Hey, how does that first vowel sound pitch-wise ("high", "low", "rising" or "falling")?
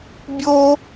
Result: high